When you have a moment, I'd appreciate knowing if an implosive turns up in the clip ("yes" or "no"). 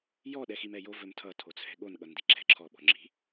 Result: yes